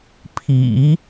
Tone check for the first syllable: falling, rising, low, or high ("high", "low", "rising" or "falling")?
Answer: low